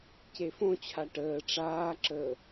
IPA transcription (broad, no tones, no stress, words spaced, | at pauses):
cefõt͡ɕʰa ʈəː ʈ͡ʂaːǁəː